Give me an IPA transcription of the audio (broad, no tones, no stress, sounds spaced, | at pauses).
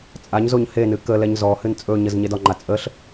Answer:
t͡sʼ a ɲ z o ɲ h e n ɨ k ə l ɛ ɲ z ɔ h ɨ n t͡sʼ ɵ ɲ ə z ɲ e d ɒ ŋ͡ǃ a t͡sʼ ə ɬ